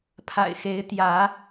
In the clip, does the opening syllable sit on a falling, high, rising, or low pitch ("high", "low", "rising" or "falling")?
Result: low